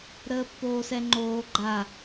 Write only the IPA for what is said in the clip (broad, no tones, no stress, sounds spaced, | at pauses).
ɾ əː pː oː s ɛ ŋ͡ǃ oː ɡ͡ǃ a